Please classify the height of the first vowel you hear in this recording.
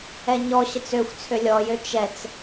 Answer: mid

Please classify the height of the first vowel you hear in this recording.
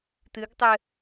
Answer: high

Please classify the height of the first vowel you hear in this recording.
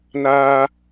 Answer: low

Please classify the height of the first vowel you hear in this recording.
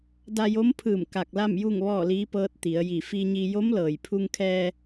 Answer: low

